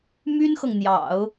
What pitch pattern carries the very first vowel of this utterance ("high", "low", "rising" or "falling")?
high